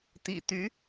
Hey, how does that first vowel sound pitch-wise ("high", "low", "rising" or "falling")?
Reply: low